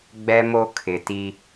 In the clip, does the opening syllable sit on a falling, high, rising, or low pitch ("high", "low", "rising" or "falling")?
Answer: high